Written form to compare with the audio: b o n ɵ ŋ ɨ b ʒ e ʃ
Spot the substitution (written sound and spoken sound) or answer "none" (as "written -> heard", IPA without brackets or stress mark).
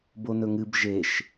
none